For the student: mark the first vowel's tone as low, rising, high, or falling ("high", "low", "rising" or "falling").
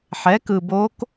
rising